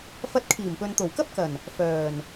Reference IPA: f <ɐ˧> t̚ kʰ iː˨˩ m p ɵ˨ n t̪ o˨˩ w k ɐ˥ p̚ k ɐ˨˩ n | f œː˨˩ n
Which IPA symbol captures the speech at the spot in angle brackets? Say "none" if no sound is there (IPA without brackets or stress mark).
ɐ˧